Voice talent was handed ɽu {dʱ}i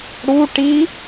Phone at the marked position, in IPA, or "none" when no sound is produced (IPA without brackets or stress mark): ʈ